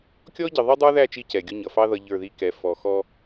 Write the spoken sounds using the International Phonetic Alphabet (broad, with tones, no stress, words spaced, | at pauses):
kʲɔ˦ ɟə˨ðˤʌ˦dˤə˞˦ðæ˦˨ t͡ʃi˦cɛ˨ɡʲʊ˦ ɲʌ˨fɑ˦ ðʌ˦ʎə˞˦˨ði˦kɛ˨˦ fɔ˨xɔ˦